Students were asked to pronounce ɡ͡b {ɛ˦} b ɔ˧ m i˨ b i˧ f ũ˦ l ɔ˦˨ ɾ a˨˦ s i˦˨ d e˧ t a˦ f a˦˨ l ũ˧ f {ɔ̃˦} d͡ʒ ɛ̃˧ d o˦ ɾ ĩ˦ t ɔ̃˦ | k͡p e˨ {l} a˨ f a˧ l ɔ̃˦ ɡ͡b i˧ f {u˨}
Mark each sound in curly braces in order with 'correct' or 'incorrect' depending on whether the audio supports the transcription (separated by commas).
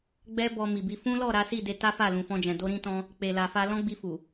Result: correct, correct, correct, correct